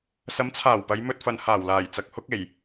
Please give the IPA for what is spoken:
s ɐ˨˥ m t͡sʰ aː˨˩ w p ɐ˨˧ j m ɵ˧ t̚ f ɐ˨ n h aː˨˩ w l aː˨˩ j t͡s ɐ˨ k̚ h ʊ˥ k̚ e˨˩ j

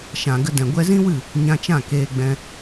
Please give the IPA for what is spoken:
ʃ ã˨ ɡ ə˧ d ɛ̃˨ ɡʷ ɛ˧ z ĩ˦ w ɨ˦˨ | ɲ ã˧ t͡ʃ ã˦˨ k eː˧ ɡ͡b ɛ̃˧

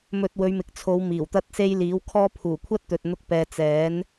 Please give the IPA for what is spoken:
m ɵ˧ t̚ w ɵ˨˧ ɥ m ɪ˨ k̚ t͡sʰ o˨˧ w m iː˨˩ w t̪ ɐ˥ t̚ s e˥ j l iː˨˥ w kʰ ɔː˥ pʰ uː˨˩ kʷʰ ɐ˥ t̚ t̪ ɵ˨ t̚ n̪ ʊ˥ k̚ p ɛː˧ t͡s ɛː˨˥ n

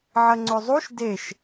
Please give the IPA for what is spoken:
ʕ ɐ ŋ͡ǀ ɵ zˤ u ʃ d e ʃ

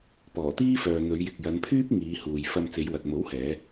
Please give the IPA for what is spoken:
p ɔː˨˩ t̪ iː˥ f œː˨ n̪ ɵ˨˧ ɥ j ɪ˨ k̚ j ɐ˨˧ n pʰ yː˥ p̚ ŋ iː˨˧ h uː˨ j f ɐ˧ m t͡s e˨˧ j w ɐ˨ t̚ m o˨˥ w h ɛː˨˧

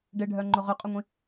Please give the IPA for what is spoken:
ɖ e ɖʱ œ ŋ͡ǃ ʊ ʁ ʏ qʼ ø ŋʷ ĩ

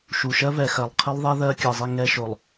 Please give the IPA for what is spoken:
ʃ u˨ ʃ ɜ˦ v ɛ˨ x ɜ˨ lˠ qʰ i˦ lˠ ðˤ ɛ˦ ð ɜ˦ kʲ ɜ˨ zˤ i˦˨ ŋ ɛ˦ ʃ o˨ lˠ

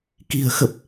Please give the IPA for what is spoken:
k i̤˨˩ ə̯ x ə˨˩ p̚

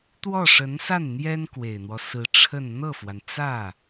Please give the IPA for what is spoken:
t̪ w ɔ˥˩ ʂ ə˧˥ n s a˥˩ n n̪ j ɛ˥ n k w e˨˩ ɪ̯ n̪ w ɔ˦ s ɹ̩˧˥ ʈ͡ʂʰ ə˥˧ n n̪ ɤ˥˩ f w a˩ n t͡s ä˥˩

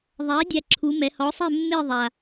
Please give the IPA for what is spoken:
ðˤ æ˩˥ dʲ æ˧ ǁʰ u˩˥ m ɛ˩˥ h ɔ˩˥ sˤ ɛ˥˩ mː e˥˩ ðˤ a˩

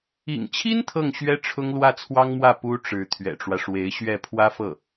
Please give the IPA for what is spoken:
ḭ˨˩ ŋ t͡ɕʰ i˥ n t̪ʰ ɤ˥˩ ŋ ɕ ɥ ɛ˥ ʈ͡ʂʰ ʊ˥ ŋ l w ä˥˩ t͡sʰ w ɑ˥ ŋ m w ä˥˩ p u˥ ʈ͡ʂ ɻ̩˧˥ t̪ʰ ɥ ɛ̰˨˩ ʈ͡ʂ w ä˦ ʂ w e˧˥ ɪ̯ ɕ ɥ ɛ˥˩ pʰ w ä˥ f ɤ˥˩

